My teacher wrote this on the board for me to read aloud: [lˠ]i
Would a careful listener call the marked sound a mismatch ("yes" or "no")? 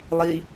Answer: no